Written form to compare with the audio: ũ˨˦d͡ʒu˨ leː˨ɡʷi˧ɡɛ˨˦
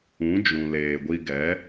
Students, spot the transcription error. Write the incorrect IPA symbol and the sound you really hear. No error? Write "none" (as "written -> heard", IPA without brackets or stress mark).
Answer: u˨ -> ũ˨